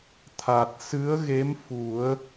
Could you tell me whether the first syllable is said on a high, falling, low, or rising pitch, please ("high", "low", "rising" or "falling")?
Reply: low